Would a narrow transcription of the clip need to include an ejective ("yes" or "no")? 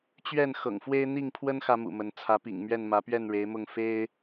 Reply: no